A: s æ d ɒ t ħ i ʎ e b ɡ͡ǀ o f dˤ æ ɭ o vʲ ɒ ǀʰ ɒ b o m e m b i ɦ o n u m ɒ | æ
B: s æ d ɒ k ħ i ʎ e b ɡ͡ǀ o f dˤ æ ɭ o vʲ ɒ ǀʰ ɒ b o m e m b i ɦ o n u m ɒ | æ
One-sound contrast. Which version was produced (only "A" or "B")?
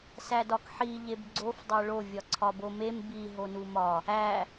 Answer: B